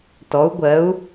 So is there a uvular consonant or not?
no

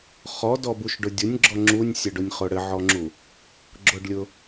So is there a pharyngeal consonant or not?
yes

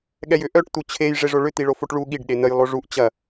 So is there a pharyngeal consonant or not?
no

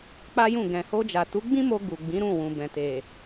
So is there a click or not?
no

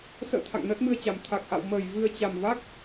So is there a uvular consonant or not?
no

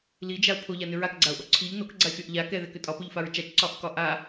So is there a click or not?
yes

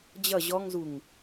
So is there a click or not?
no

